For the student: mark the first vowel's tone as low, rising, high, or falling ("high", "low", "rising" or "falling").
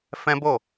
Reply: high